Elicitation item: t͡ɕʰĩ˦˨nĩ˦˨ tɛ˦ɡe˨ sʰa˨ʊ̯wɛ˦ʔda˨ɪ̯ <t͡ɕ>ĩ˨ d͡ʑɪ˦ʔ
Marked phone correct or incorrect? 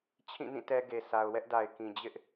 incorrect: k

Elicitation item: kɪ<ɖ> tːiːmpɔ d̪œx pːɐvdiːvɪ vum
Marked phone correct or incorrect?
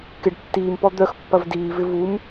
correct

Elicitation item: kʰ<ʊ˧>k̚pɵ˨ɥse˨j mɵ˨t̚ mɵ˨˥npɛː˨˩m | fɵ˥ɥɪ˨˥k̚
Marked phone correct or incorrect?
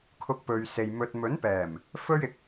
correct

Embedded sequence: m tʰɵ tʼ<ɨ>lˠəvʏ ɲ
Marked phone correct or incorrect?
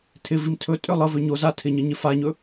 incorrect: ʏ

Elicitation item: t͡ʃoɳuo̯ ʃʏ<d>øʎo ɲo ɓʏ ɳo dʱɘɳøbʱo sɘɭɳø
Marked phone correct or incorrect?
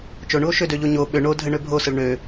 correct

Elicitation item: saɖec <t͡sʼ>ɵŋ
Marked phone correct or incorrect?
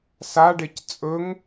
correct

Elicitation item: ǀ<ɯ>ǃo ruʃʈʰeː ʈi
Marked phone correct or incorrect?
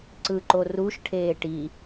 correct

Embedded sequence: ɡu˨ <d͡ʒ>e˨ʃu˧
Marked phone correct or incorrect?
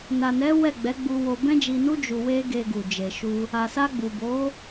correct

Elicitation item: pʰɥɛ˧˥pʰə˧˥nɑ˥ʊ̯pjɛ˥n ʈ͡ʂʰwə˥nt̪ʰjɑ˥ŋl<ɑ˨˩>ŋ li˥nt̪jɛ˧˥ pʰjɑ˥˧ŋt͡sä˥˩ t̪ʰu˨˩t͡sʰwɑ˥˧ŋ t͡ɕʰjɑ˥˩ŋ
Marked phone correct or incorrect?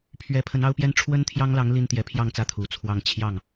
incorrect: ɑ˧˥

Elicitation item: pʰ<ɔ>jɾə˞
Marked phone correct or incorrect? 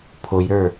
incorrect: o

